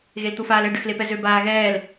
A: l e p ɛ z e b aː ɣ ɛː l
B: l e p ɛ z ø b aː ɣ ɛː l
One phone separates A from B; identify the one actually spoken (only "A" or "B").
B